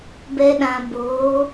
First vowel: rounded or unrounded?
unrounded